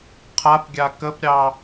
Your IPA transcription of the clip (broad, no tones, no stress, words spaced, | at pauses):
qʰapɡʲa kəpɾʲɑ